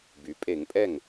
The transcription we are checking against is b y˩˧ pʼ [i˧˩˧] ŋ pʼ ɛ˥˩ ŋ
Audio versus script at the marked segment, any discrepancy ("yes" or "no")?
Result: yes